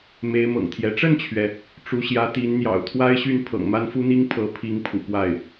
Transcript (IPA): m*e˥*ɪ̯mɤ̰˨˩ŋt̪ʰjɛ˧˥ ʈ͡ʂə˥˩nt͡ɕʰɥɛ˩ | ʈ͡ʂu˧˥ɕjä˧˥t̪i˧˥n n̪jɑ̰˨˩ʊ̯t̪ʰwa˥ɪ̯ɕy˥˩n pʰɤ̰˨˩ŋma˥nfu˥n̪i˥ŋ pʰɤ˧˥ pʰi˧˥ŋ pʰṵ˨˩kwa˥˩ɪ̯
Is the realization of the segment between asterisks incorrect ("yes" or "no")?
yes